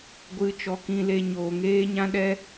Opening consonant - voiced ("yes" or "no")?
yes